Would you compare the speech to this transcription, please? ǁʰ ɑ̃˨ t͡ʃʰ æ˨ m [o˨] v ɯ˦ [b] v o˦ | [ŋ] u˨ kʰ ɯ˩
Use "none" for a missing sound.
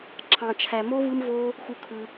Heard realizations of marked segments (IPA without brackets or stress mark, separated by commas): o˥, m, x